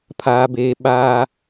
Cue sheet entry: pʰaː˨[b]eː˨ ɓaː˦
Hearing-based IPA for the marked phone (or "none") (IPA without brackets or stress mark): b